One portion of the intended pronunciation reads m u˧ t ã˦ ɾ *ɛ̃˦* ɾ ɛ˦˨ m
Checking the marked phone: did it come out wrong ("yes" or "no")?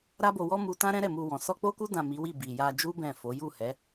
no